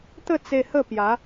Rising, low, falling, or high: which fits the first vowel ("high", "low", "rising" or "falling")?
falling